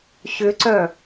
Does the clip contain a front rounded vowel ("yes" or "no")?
yes